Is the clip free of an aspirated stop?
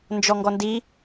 yes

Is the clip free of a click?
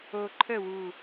no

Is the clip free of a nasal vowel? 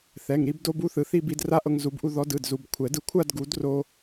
yes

